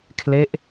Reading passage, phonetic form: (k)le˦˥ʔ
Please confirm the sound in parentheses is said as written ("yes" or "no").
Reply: no